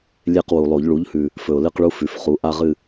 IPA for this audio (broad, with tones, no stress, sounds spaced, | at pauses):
lʲ e˦˨ q w u˨˩ lˠ o˨˩˦ ʎ ɭ u˩˥ ʎ h ʉ˨˩ | f ɵ˨˩ ʊ̯ l ɨ˦˨ q ɭ u˦ f ʉ˨˩˦ f χ u˩˥ ʔ a˦ ʁ ɨ˦˨